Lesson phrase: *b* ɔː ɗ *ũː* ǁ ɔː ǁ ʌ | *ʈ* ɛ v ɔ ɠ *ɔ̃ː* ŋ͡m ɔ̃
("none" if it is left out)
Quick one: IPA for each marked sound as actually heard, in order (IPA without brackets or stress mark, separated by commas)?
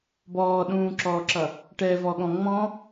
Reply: b, ũː, ʈ, ɔ̃